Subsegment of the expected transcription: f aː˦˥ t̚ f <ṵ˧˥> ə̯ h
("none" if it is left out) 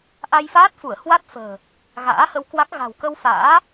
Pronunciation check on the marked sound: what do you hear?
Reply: u˧˩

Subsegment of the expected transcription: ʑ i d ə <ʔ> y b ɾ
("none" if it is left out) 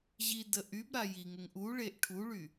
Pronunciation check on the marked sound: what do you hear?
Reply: ʔ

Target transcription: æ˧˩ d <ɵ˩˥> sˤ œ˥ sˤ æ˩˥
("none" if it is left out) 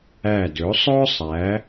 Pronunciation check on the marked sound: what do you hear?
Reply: ɵ˩˥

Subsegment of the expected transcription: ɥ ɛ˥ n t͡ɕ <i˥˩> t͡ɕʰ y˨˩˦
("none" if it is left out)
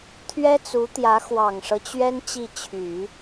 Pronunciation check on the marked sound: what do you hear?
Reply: i˥˩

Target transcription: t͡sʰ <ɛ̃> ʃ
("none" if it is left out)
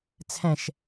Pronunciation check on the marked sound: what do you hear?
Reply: ɛ̃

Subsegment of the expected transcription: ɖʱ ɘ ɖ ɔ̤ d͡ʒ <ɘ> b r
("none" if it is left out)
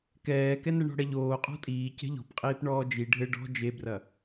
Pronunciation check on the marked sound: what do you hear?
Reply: e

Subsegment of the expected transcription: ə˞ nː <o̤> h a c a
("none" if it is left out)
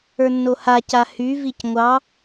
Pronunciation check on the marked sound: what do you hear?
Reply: o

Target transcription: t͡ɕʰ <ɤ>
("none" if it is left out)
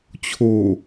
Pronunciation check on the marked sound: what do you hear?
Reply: o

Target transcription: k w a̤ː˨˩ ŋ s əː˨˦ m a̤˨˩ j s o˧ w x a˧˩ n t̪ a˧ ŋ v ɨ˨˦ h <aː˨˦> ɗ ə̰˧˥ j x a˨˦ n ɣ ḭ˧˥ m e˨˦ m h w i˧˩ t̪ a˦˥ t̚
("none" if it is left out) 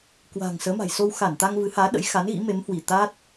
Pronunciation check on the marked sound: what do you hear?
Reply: aː˨˦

